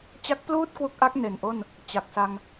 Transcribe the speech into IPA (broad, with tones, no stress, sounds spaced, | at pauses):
t͡ɕ a˦˥ k̚ p l uː˥˩ t̚ k w u˦˥ k̚ ʔ a˦˥ k̚ n e˨˩ n ʔ o˥˩ n | t͡ɕ a˨˩ k̚ s a˧ ŋ